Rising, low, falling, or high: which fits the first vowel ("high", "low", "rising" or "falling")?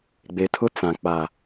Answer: low